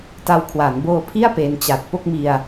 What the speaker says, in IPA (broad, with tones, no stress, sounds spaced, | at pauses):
t a˧ w kʰ w a˩˦ n b oː˧ pʰ i˥˩ a̯ p e˧ n t͡ɕ a˨˩ t̚ p o˥˩ k̚ m i˧ a̯